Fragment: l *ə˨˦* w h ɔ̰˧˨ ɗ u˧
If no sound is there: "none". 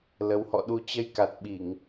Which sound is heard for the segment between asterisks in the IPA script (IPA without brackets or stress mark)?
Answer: ə˨˦